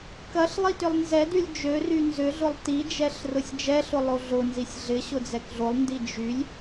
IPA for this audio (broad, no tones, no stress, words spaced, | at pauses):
kɐɬ lˠitʏlˠnzɛdylʲ d͡ʒøry nzʏɮʊlˠ tid͡ʒɛɬ rʊsʲd͡ʒɛɬʊ lˠoɮʊnzisʲ ɮɪɕʊ d͡zɛkɮolˠndi d͡ʒylʲ